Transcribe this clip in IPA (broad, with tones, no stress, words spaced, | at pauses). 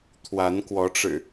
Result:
t̪ʰwa˨˦nkwɔ˨˦ʈ͡ʂɻ̩˨˩